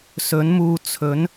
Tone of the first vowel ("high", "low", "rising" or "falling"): rising